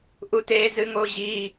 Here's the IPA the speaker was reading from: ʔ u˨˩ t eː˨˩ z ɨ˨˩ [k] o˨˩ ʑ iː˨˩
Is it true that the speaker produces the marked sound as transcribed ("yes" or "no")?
no